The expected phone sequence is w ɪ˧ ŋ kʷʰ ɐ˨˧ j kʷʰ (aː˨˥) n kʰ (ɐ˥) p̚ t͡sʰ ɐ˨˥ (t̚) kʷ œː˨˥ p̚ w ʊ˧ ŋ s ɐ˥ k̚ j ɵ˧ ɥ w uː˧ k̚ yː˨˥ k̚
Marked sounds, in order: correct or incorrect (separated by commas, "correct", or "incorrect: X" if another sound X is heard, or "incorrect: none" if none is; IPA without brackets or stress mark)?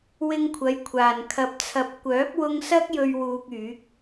incorrect: aː˨˩, incorrect: ɐ˨, incorrect: p̚